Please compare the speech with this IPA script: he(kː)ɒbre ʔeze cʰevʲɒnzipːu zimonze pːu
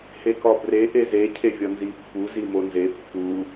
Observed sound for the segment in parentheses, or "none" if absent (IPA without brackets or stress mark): k